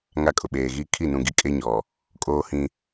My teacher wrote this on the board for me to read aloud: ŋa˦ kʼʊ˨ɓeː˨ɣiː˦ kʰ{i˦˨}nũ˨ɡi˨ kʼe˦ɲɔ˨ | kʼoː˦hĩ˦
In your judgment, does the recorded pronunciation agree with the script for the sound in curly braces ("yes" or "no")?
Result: yes